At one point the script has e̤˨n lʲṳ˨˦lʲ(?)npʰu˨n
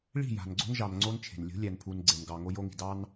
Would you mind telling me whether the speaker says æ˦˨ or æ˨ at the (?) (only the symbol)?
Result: æ˨